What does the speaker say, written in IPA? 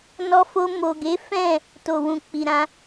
n ɔ˧ f o˧ m o˨ ɡ e˨˦ f ɛ̃˦˨ | t o˨ w ũ˨ k͡p i˨ ɾ ã˧

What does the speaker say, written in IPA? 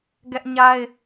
ɡ ɛ˦ ʔ ɲ a˦ ɪ̯

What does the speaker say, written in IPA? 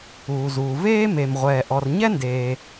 uː˩ z uː˩ v eː˥ m e˩ m ʁʷ ɛː˩ ʔ ɔ˩ r ɲ ɛ˥ n d eː˩

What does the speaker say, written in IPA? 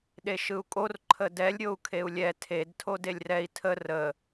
ɗ e ʃ ɯ u̯ kʼ o r ǃʰ ə d ɛ lʲ ɾʲ o u̯ kʰ e u̯ lʲ ɛ tʰ e d tʰ o d e lʲ r ɛ i̯ tʰ ə r ə

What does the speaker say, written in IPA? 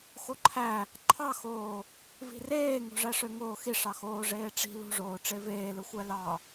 x o ǃʰ æ | ǃʰ ɑ x oː | v i̤ r eː ŋ o̤ ʐ æ ʂ ø ŋ oː x i ʂ ɑ x oː ʐ eː ʈ͡ʂ i̤ l ṳ ʐ oː ʈ͡ʂ e v eː l ɯ xʷ æ l ɑ

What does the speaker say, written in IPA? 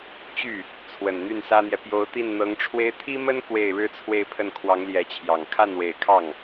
t͡ɕ y˥˩ | t͡sʰ w ə˨˩ n n̪ y˥˩ n s ä˥ n̪ j ɛ˨ p j o˧˥ ʊ̯ t̪ i˥˩ n n̪ ɤ˧˥ ŋ ʈ͡ʂʰ w e˥ ɪ̯ t̪ʰ i˥ m ə˥ n k w e˥˩ ɪ̯ ɻ ɻ̩˥ t͡sʰ w e˥˧ ɪ̯ pʰ ə˥˩ n kʰ w ɑ˧˥ ŋ l j ɛ˧˥ t͡ɕʰ j ɑ˨˩ ŋ kʰ a˥˩ n w e˨˩ ɪ̯ kʰ ɑ˥˩ ŋ

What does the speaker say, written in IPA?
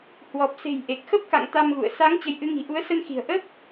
h w ɔ˨˩ p̚ s e̤˨˩ j ʔ e˨˩ k̚ x ə˦˥ p̚ k a̰˧˨ ŋ t̪ a˧ m ɣ ṵ˧˨ ə̯ s a˨˦ ŋ t͡ɕ ə˨˦ j ʔ ɨ˨˦ ŋ i̤˨˩ ʔ u˨˦ ə̯ s ə˧ n x i̤˨˩ ə̯ ʔ ə˦˥ p̚

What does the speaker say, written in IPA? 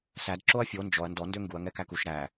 s æ d ǁ o ɐ̯ fʲ o n d͡ʒ ɔ ɐ̯ n d ɔ n d ø ŋ ɡ u ɐ̯ ŋ ɛ k æ k u ʃ ɾ æ

